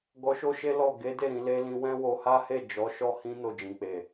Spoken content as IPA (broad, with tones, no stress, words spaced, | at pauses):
ɡɔ˧ʃo˦ʃe˦ lɔ˦˨ ɡe˨˦de˦˨ ɾĩ˧le˦ lĩ˧wɛ̃˦ wo˧ha˦he˦˨d͡ʒɔ˨˦ ʃɔ˦hĩ˦ no˦˨d͡ʒĩ˨k͡pe˨